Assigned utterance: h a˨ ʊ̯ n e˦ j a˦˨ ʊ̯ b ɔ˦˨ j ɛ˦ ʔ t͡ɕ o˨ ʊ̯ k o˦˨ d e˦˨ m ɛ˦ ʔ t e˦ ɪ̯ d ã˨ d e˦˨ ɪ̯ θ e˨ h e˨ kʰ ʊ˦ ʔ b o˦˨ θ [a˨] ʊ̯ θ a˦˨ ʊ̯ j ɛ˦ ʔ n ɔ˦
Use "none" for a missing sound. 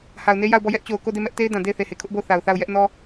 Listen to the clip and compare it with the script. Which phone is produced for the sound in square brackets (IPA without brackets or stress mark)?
a˨